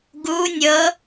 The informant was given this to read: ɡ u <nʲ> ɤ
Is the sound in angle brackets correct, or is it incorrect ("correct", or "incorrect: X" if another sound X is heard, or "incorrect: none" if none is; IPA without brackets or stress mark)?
correct